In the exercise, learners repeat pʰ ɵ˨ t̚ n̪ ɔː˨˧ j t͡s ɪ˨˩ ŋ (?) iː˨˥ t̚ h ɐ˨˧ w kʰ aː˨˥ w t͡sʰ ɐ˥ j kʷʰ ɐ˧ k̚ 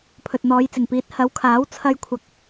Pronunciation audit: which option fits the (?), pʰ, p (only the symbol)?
p